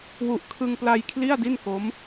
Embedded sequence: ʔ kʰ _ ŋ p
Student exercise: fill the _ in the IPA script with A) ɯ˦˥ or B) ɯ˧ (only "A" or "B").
B